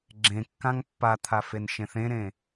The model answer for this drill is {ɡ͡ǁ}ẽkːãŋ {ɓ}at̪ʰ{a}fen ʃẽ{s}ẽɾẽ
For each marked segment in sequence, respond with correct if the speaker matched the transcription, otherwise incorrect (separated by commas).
correct, incorrect, correct, incorrect